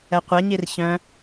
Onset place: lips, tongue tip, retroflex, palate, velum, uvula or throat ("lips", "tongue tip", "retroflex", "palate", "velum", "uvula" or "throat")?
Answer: uvula